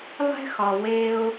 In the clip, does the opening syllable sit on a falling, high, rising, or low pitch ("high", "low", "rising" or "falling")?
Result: high